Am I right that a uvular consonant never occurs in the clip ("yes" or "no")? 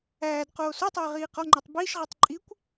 no